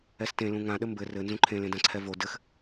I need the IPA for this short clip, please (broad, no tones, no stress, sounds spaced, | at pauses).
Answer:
ɛ s t ẽ l ũ ŋ ã ɗ ɘ m b ɘ r ɘ n z ũ ǃʰ ẽ l ẽ d ã ǀʰ ɛ v o d ɘ x